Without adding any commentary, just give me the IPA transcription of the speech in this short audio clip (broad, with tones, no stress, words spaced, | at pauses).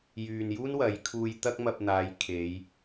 jyː˨njuː˥n wɐ˨˥jkʰuː˧j t̪ɐ˥k̚mɐ˧p̚n̪aː˨˧j kʰe˨˧j